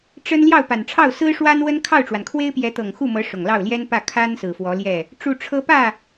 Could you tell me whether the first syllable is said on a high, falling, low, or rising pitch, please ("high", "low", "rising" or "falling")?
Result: high